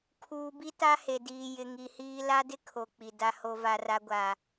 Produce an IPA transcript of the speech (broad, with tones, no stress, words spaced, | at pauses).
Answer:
kʰuː˨bi˦ ta˦he˨diː˨ jɪ˨ŋi˨hiː˦ la˦dɪ˦kʰo˨ k͡pi˨ da˦ho˦ va˦ra˦ɡʷa˨